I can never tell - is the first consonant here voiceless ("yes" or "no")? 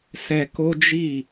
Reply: yes